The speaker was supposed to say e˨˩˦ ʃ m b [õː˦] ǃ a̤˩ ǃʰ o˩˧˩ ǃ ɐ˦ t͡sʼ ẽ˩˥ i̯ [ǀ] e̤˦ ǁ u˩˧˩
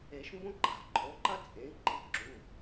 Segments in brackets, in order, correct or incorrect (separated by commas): incorrect, incorrect